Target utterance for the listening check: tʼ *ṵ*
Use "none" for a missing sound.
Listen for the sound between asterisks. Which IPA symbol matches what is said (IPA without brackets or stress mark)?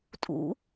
ṵ